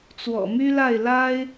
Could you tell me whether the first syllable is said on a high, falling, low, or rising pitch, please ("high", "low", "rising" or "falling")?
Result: low